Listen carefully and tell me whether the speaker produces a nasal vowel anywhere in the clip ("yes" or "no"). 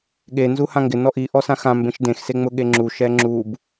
yes